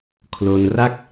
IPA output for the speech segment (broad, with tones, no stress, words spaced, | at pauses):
kʰlo˧nra˥˩k̚